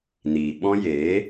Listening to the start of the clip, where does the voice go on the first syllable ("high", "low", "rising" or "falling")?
low